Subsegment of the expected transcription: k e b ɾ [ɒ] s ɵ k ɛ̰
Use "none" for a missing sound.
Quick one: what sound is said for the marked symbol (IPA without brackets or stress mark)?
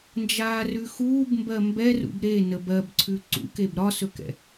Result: ɒ